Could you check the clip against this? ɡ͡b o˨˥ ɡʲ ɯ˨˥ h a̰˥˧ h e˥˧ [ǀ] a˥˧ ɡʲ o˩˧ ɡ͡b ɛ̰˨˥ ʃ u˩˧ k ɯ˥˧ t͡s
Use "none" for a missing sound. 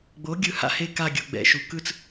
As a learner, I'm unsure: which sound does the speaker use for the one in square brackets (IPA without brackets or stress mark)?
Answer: k